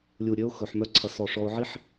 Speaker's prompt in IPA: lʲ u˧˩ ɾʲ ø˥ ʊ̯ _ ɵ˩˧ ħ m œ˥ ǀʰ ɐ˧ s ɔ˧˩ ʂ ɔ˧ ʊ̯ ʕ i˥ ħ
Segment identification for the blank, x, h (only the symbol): x